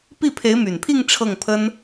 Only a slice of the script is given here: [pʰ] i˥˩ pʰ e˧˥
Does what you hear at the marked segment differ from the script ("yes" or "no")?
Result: yes